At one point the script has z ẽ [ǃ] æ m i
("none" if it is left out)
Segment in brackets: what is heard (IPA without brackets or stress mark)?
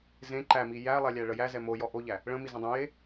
ǃ